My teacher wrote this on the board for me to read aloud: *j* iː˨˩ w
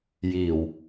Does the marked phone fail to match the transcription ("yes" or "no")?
no